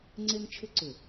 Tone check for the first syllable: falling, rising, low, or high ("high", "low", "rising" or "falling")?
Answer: high